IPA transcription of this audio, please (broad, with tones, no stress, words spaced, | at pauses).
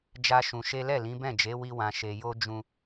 d͡ʒa˦ʃũ˧ʃe˦ lɛ˦˨lĩ˨˦bɛ̃˦˨d͡ʒe˨˦ wi˦wã˧ʃe˧jo˦ d͡ʒũ˦